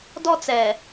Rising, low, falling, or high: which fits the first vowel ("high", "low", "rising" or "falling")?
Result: high